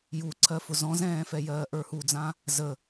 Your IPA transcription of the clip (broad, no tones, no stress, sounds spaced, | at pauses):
j u ǀʰ ɜ f ʊ z ɔ̃ z ɛ̃ː f ɛ j ɜː ʔ ə˞ h u d͡z ã | z ə